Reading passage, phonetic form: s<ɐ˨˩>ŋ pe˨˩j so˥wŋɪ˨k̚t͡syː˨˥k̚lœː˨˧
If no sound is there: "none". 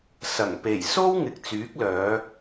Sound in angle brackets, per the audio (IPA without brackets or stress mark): ɐ˨˩